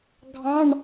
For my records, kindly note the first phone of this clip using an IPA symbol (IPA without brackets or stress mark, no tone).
ɡʱ